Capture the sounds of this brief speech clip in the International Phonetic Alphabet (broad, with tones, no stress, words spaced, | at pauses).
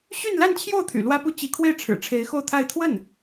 ɕy˥˧nla˥˧nt͡ɕʰjo˥˩ʊ̯ t̪ʰy̰˨˩ lwä˥pu˥˩ t͡ɕi˧˥kʰwe˥˩ɪ̯ ʈ͡ʂʰɻ̩˨˩ʈ͡ʂʰe˧˥ɪ̯xo˥˧ʊ̯t̪ʰa˥˧ɪ̯ t̪ʰwə˥˩n